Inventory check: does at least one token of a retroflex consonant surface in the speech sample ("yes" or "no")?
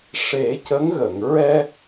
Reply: yes